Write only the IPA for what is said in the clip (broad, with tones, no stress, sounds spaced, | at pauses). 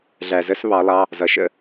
ɮ æ˨ z ə˧˥˧ s β ɑ˨˥ lˠ ɑ˧˥˧ | z ʌ˨˥ ʃ ə̰˧˥˧